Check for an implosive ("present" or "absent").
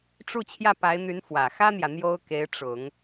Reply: absent